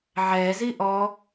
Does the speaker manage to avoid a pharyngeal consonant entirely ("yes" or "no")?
no